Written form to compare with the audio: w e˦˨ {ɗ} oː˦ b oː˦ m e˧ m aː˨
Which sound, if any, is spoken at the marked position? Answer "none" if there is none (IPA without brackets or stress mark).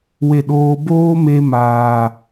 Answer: ɗ